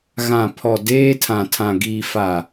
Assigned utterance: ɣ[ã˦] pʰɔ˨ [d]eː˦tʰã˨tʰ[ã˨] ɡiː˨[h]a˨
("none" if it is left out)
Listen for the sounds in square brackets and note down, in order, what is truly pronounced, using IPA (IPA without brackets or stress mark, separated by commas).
ã˨, d, ã˨, f